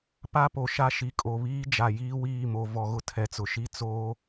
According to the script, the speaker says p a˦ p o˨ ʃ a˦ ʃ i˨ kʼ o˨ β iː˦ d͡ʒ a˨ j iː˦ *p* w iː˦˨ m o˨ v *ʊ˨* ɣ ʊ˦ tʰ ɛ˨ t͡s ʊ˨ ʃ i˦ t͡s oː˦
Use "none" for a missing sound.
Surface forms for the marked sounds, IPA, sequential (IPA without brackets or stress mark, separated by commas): none, ɔ˨